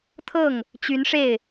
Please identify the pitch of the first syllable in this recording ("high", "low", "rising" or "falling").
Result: falling